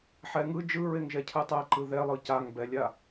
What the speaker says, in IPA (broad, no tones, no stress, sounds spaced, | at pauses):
ħ ɛ ŋ ɯ d͡ʒ ɯ ɹ e ŋ ʒ ɛ cʰ ɯ tˤ ɛ ǃ ɯ ð ɛ lˠ ɯ c a ŋ b ɛ lʲ a